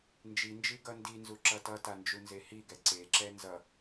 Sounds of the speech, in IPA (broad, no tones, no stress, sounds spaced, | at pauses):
n d͡ʒ i n d͡ʒ i ɡ ʌ n d i n z u ǁ ʌ t ʌ t a n d͡ʒ u n z e h i ɡ ɛ ǀ e ǁ ɛ n z ʌ